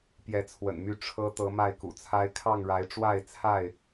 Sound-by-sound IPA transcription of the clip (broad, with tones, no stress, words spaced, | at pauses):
pjɛ˨˦t͡sʰwə̰˨˩nmy˥˨ ʈ͡ʂʰɤ˦ t̪ɤ˨˦ma˥˨ɪ̯kṵ˨˩t͡sʰa˦ɪ̯ kʰɑ˥˨ŋɻa˨˦ɪ̯ ʈ͡ʂwa˥˨ɪ̯t͡sʰa˥˨ɪ̯